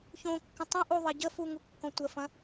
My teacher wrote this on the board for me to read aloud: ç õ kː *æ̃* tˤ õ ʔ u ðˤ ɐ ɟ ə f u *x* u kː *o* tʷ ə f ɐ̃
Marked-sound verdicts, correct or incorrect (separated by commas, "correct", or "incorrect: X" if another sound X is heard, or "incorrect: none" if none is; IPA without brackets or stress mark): incorrect: ə̃, incorrect: ŋ, incorrect: õ